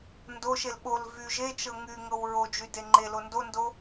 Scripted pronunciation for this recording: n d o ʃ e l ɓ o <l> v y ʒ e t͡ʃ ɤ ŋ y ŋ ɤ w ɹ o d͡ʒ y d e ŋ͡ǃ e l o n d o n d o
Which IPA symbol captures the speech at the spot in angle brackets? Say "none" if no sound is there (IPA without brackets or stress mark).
l